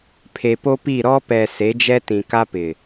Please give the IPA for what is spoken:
pʰe˨po˦pi˦˨ ɾɔ˦pɛ˨ se˨˦d͡ʒɛ˦tĩ˨ka˦ pɪ˨

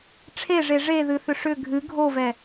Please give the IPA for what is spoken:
ʈ͡ʂʰeʐe ʐeðɨθʏ ʂʏ ɡʱɨ ɡʱovɛ

